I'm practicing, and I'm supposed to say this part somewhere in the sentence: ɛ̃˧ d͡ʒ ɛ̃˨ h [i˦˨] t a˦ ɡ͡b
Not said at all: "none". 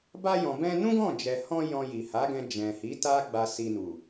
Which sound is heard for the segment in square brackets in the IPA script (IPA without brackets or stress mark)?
i˨˦